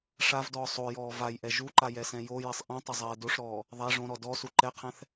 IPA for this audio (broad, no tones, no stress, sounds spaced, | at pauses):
ʂ a v d ɔː sˤ o j ɔː v a j ʔ ɛ ʒ u ǃ a j ɛ s ɛ̃ j o j e sˤ ʔ ĩ tˤ ɪ zˤ ɛː d o ʂ ɾ ɔː | ðˤ a ʐ õ ɾ ɔ d ɔ s u ǃ ɛ qʰ ɛ̃ θ